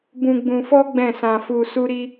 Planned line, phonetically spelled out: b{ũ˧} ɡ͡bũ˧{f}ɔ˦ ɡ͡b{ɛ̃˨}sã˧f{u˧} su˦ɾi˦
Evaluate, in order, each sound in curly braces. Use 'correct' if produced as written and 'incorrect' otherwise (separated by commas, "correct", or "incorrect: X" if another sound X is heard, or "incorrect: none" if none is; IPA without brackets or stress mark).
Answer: correct, correct, incorrect: ɛ̃˦˨, correct